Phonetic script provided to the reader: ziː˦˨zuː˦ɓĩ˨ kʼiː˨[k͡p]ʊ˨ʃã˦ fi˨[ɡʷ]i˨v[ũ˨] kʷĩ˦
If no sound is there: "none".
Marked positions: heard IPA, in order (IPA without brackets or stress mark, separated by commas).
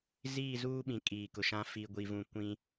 k, ɡʷ, ũ˨